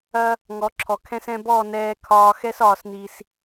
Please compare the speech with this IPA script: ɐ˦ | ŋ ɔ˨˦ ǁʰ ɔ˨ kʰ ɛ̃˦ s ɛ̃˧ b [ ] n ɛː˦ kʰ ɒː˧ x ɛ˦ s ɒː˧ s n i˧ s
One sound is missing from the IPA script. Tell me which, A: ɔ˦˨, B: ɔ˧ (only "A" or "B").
A